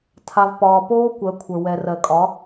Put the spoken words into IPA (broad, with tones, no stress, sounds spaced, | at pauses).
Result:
tʰ a˨ v p ɒː˨ p oː˦ kʷ ɜ˨˦ kʷʰ ə˞˨ w ɛ˨ r ɜ˨ kʼ ɒ˨˦